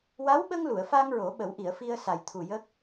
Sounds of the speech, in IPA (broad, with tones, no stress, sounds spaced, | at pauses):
w a˧˥ w ɓ ə˧ ŋ l u˨˩˨ ə̯ f a˧ ŋ ɹ o˨˩˦ ɓ ə˨˩˦ w ʔ i˨˩˨ ə̯ f i˧ ə̯ s a˨˩ j t̪ʰ u˨˩ j ə˦˥ k̚